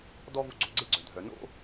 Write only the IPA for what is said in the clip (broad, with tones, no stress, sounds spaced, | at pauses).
d ɔ˥ v u˦ ɡ͡ǀ o˩ ɡ͡ǀ e˥ ɡ͡ǀ œ˩ dʱ œ˩ n o̰˥